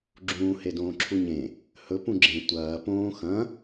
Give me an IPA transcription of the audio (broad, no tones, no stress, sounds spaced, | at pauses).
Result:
ɡ͡ǁ ũː h e d õː ǁʰ u ɲ ẽ | h ɵ p ũ ɡ͡ǁ ẽ tʷ ɐː p õː x ɐ̃